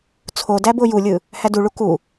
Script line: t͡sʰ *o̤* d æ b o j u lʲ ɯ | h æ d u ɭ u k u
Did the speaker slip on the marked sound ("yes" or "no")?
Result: yes